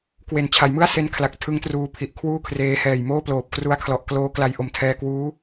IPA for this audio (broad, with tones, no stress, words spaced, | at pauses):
kwe˨˩n t͡ɕʰa˩˦jmɯ˥˩a̯ se˦˥nkʰla˨˩k̚ tʰɯ˦˥ŋtruː˦˥pʰi˨˩ʔ kʰwuː˥˩kʰreː˧hɛː˨˩j moː˥˩ploː˨˩p̚kru˦˥a̯kʰlɔ˨˩ʔ kloː˦˥kla˧j ʔo˨˩mtʰɛː˧kwuː˦˥